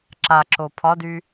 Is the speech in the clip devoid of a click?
no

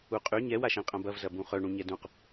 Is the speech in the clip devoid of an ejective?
no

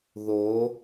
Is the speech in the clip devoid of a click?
yes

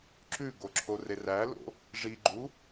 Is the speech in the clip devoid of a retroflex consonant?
no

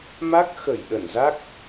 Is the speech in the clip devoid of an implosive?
no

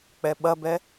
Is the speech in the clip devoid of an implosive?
no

